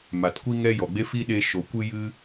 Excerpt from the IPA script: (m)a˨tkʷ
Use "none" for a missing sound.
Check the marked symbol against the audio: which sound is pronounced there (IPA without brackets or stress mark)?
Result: m